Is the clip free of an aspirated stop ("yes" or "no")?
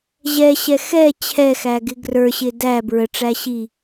no